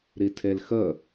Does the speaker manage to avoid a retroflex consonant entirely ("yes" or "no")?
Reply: yes